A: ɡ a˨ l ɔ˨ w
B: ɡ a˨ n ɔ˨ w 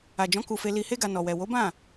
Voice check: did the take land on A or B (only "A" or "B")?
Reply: B